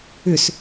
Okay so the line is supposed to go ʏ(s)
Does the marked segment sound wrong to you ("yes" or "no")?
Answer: no